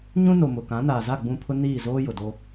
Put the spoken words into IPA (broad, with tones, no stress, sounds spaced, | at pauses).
ɲ ũ˦ n o˨ m ʊ˨ k ã˨˦ n aː˨ z a˦˨ ɡ͡b ũ˦˨ pʰ ʊ˦ n iː˦˨ z oː˦ j ʊ˨ d o˦